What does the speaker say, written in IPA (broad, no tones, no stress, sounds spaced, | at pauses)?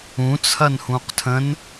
ũ t͡sʰ ɐ n h ũ q tʰ ə̃ n